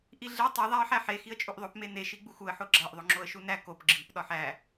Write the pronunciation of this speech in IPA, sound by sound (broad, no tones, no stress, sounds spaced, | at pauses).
ʔ i ɮ e tˤ o ðˤ æ ə̯ ħ æ ħ e x i ə̯ t͡ʃʼ u ʔ ðˤ o p m e n e ʃ i ɡ͡b u x u ə̯ ħ o ɡ͡ǁ æ ʔ ðˤ o ŋ͡ǁ o ə̯ ʃ u n æ k o p ɡ͡ǁ i p ɗ ɒ ħ æ